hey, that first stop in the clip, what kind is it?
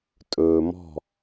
ejective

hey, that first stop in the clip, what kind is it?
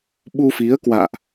implosive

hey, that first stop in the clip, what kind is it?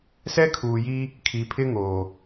aspirated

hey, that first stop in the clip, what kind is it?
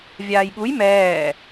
implosive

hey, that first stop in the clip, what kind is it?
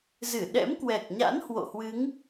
implosive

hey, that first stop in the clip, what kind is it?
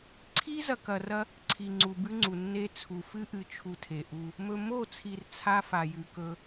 click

